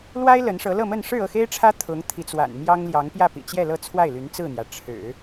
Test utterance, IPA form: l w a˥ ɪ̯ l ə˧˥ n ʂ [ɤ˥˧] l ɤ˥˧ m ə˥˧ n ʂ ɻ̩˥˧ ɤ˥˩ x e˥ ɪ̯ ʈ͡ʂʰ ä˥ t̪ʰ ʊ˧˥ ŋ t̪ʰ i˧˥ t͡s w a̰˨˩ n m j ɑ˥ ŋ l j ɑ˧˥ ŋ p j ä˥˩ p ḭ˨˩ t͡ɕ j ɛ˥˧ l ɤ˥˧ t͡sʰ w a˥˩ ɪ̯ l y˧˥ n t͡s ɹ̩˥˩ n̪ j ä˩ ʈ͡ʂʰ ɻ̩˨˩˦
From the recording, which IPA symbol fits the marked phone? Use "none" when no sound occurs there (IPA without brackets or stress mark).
ɤ˧˥